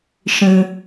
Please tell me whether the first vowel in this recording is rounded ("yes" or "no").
no